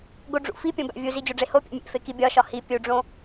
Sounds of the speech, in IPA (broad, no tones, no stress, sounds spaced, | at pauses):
ɡ o ɖ͡ʐ ṵ f i pʲ õ b æ̰ vʲ u z i d͡ʑ o ɖ͡ʐ e h o pʲ o̰ mʲ ḛ f e k i bʲ ɒ ʃ ɒ h i pʲ u ɖ͡ʐ õ